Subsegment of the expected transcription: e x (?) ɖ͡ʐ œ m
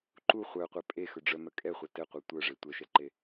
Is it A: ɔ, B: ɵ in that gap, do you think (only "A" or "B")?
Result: B